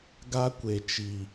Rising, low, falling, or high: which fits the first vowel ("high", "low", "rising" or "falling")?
high